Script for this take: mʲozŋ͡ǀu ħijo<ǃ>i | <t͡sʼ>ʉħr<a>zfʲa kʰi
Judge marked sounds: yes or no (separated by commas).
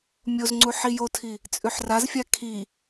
no, yes, yes